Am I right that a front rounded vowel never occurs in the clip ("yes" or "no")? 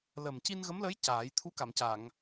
yes